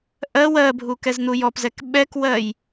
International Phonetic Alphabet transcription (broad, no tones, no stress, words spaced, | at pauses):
ʔɜ wɜbʱu kɛzn̪ujɔpzɛk ɓɛkwɜj